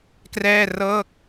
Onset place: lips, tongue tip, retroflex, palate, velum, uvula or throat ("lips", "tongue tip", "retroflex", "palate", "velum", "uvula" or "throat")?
velum